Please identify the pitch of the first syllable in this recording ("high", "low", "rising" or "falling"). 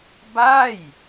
falling